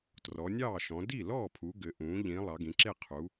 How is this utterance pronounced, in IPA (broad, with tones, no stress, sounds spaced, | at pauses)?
t r ɔ˩˧ nʲ ɑː˥˩ ʃ ɔ̃˩˧ d i˥˩ l ɔː˥˩ pʰ u˩˧ ɡ ɘ˩˧ ʔ ũː˩˧ ʎ ĩ˩˧ lˠ ɑ˩˧ ɡ ĩ˩˧ ǁ e˥˩ qʰ u˩˧